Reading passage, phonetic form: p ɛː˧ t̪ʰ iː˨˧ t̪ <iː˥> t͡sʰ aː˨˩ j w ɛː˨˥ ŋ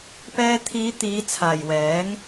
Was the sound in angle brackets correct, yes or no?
no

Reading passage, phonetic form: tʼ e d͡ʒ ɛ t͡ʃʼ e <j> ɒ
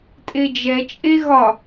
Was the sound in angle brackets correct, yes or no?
no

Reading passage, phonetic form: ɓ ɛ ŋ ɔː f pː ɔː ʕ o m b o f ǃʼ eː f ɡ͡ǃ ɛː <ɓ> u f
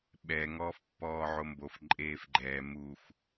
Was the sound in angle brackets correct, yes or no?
no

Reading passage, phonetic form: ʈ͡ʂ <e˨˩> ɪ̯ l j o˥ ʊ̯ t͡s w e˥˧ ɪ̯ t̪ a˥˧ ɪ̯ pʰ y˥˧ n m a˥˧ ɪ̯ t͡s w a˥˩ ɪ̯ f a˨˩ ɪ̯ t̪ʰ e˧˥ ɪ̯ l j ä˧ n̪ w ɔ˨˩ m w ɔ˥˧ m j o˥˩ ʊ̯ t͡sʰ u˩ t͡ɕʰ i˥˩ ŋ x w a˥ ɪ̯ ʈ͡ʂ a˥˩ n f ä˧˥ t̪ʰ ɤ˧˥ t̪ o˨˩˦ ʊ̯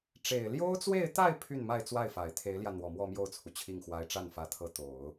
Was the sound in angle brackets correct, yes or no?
yes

